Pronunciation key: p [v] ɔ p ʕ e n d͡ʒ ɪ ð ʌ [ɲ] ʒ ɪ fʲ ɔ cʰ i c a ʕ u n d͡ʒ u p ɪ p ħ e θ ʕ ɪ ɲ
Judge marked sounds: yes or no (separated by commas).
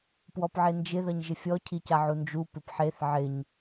no, yes